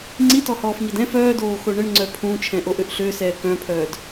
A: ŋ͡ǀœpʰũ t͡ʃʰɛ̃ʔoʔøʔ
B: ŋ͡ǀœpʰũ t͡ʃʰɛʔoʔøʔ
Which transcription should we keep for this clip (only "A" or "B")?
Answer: A